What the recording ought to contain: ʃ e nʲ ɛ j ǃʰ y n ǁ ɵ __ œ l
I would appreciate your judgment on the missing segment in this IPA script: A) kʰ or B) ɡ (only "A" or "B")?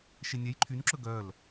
B